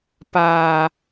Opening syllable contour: low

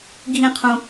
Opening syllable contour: high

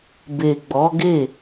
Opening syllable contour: low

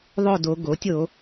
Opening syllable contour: falling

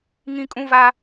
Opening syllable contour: high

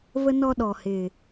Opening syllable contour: high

